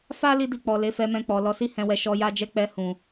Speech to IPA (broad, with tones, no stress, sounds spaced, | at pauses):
f a˧ l i˦ d i˦˨ k͡p ɔ˨ l e˨˦ f ɛ˧ m ɛ̃˧ k͡p ɔ˨ l ɔ˨˦ s i˦ h ɛ̃˧ w ɛ˧ ʃ ɔ˧ j a˦ d͡ʒ ɛ˦ k͡p ɛ˧ h ũ˨